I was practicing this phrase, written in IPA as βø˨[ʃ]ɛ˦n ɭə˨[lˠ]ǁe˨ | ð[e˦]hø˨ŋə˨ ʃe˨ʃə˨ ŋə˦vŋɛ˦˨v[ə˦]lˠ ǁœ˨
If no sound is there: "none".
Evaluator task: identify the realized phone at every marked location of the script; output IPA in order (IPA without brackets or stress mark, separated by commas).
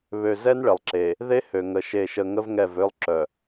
z, lˠ, e˦, ø˦